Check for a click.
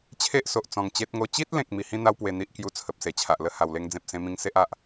absent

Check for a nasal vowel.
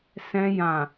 present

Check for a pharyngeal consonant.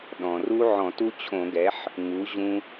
present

